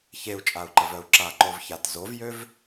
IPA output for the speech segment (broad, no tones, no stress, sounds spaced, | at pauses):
ç e u̯ t͡ʃʼ a u̯ ǃ ə v œ u̯ ǁ a ǃ o v ç a t z o v j ø v